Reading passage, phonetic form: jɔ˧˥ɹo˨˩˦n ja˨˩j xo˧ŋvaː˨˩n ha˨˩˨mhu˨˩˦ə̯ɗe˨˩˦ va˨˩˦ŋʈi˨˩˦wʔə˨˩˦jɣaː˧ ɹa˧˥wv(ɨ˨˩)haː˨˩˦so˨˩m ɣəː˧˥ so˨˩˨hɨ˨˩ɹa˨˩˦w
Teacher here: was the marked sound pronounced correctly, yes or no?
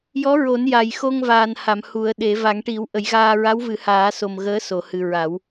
no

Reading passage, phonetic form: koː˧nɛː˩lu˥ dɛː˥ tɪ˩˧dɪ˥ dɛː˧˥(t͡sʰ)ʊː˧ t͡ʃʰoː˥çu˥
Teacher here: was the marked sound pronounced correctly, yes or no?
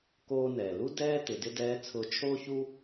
yes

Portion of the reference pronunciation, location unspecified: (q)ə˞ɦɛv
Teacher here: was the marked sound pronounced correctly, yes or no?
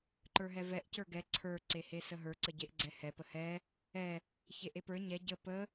no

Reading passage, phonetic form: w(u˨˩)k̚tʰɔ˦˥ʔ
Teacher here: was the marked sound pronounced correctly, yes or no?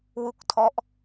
no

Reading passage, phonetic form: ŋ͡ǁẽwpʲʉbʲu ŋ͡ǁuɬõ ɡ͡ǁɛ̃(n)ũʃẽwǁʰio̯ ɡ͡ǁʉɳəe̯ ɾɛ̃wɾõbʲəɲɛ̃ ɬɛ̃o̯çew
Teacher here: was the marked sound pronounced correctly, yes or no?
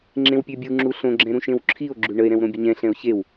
no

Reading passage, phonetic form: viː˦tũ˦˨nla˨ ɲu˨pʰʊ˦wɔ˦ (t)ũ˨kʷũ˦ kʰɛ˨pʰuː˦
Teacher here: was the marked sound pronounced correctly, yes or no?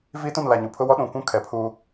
no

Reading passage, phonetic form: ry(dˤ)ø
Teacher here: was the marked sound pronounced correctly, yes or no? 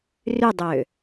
yes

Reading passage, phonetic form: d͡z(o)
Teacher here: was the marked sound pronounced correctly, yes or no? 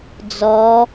no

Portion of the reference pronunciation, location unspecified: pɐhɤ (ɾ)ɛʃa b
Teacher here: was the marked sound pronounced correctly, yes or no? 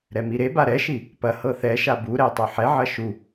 no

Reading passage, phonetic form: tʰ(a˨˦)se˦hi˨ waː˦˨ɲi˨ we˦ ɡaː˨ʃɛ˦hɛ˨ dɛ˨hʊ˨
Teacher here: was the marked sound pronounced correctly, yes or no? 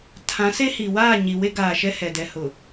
no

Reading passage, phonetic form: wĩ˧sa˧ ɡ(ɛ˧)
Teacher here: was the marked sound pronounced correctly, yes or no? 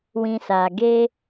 no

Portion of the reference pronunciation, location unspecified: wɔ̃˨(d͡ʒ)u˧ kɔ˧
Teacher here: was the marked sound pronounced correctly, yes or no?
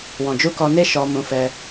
yes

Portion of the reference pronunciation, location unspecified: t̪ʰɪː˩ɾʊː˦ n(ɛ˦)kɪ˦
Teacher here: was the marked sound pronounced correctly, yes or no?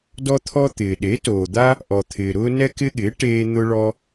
yes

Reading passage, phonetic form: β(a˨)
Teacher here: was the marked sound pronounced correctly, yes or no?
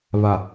yes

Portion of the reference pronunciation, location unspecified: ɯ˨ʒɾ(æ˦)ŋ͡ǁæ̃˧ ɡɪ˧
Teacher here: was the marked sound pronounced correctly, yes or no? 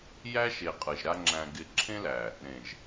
no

